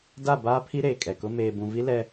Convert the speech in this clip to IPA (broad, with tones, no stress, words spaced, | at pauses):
da˦˨baː˦pʰi˦ ɾeː˨kʼɛ˨kʊ˦ meː˨bũ˨vi˦ lɛ˦